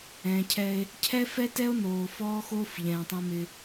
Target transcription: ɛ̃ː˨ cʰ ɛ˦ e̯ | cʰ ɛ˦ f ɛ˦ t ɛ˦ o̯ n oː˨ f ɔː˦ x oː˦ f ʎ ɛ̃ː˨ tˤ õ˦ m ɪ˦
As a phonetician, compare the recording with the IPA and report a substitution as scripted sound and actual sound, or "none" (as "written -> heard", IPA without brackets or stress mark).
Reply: none